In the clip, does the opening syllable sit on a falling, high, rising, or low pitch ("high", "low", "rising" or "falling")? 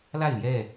falling